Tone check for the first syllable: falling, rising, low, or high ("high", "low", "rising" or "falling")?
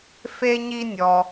high